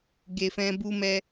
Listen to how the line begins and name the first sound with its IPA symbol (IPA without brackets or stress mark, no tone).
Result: ɡ